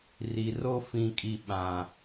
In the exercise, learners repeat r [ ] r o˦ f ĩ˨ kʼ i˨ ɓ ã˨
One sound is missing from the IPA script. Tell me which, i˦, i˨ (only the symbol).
i˨